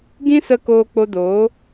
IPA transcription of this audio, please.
ɡ ĩ˦ s ə˧ k oː˧ k͡p o˧ d oː˨˦

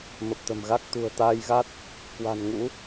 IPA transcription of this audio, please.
m ə˨˩ p̚ t̪ ə̤˨˩ m ɣ a˦˥ k̚ t̪ ṳ˨˩ ə̯ t̪ aː˧ j ɣ a˦˥ t̚ | k w a̤˨˩ n ŋ ṵ˧˥

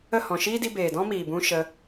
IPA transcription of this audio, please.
ə˦˨ h ɔ̃˨ ʃ iː˦ d i˧ b eː˨ d ɔ̃˦ m iː˨ b ũ˧ ʃ ə˧

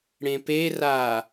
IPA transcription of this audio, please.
ɽ ẽ p e r a

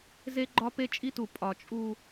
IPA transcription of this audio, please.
z e˦ ɡ͡ǃ ɒ˦ p e˦ t͡ʃʼ i˦ t u˨ pʼ ɒ˨ t͡ʃʼ u˦

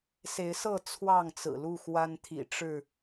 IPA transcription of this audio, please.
s e˨˦ ɪ̯ s ɤ˥˨ t͡sʰ w ɑ˥˨ ŋ t͡s ɹ̩˨˩ l u˥˨ x w a˦ n t̪ʰ ḭ˨˩ ʈ͡ʂ ɻ̩˥˨

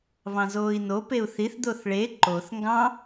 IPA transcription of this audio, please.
β ɑ̃ z oː i̯ n o p e u̯ θ i θ d̪ o θ ɭ e ǃ o θ ŋ ɡ ɑ̃

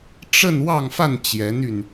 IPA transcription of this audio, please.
ʈ͡ʂ ə˥˧ n w ɑ˥˧ ŋ f a˥˩ n t͡ɕ j ɛ˧˥ n y˧ n

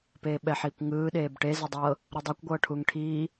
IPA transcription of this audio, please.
p eː ɓ ɛ ħ iː kʷ ŋ ɯː ɗ eː b ʈ e z e dˤ ɤ | ɾ ɯ dˤ ɤ kʷ ɡʷ ɤː ʈʰ uː ŋ ʈʰ iː

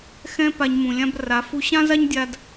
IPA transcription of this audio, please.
x ɛ̃˦ p a˧ ɲ m ũ˨ lʲ ã˦ b r a˨˦ f u˧ ɕ ã˦ z a˦ ɲ dʲ a˧ d

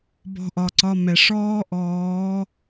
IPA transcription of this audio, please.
b ɔ̤˧ ʔ ɒ˨ ǀ ɒ˧ m ɛ˨ ʂ ɔː˦ ʔ ɔː˨˦

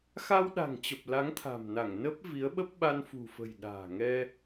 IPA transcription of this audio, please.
x a˧ w ɗ a̤˨˩ ŋ t͡ɕ ə˨˩ p̚ l a˨˦ ŋ t̪ʰ a̤˨˩ m n a˧˩ ŋ n ə˦˥ p̚ v i˨˦ ə̯ ɓ ə˦˥ p̚ ɓ a˧ n f ṳ˨˩ f ə̤˨˩ j ɗ a̤ː˨˩ ŋ ɛ˧

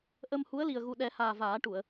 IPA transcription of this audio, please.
ʔ ə˧ m h u˧˥ ə̯ l i˨˩ ə̯ ɣ u˨˩ ɗ ɛ˨˩˦ h aː˨˩ v aː˨˩˦ ʈ u˨˩˨ ə̯

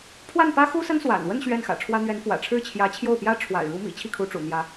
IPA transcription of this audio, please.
pʰ w a˥˩ n p ä˥ x u˥ s ə˥ n s w a̰˨˩ n w ə˥˧ n ɕ ɥ ɛ˥˩ n x ä̰˨˩ ʈ͡ʂʰ w ä˥ n̪ ɥ ɛ˧˥ n f w ä̰˨˩ ʈ͡ʂʰ ɻ̩˥˩ t͡ɕʰ j ä˧˥ t͡ɕʰ j o˥˩ ʊ̯ p j ä˥ ʈ͡ʂʰ w a̰˨˩ ɪ̯ ɻ u˧˥ m ḭ˨˩ t͡ɕʰ i˥˩ kʰ u˧˥ ʈ͡ʂ ṵ˨˩ n̪ j ä˧˥

